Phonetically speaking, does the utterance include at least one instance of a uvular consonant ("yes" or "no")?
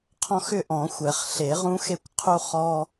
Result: yes